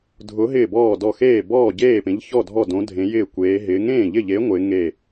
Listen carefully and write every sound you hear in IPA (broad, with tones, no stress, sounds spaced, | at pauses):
dʱ ʊ˨˥ ɦ ɪː˥˩ b ɔː˥˩ d ɔ˥˩ x eː˥˩ b ɔː˥˩ ɟ eː˥˩ p ẽ˨˥ ʎ ç ɔ˥˩ dʱ ɔ˥˩ d õ˨˥ dʱ ẽ˨˥ j ɪː˥˩ kʷ eː˨˥ ɦ ɪː˨˥ ŋ ẽː˥˩ ʎ ɪ˥˩ ʎ e˨˥ ŋʷ ɪː˨˥ ŋ e˥˩